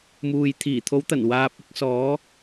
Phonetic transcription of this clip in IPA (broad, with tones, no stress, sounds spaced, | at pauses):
m uː˨ j t̪ʰ iː˨˩ t̪ʰ o˨˥ w t̪ ɐ˨˩ n w aː˨ p̚ ɪ˧ k̚ s ɔː˨˧